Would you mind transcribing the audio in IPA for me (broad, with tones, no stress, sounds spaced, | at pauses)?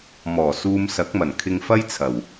m ɔː˨˩ s uː˧ m s ɐ˨˥ k̚ m ɐ˨˩ n kʰ ɪ˧ ŋ f ɐ˥ j t͡sʰ ɐ˨˩ w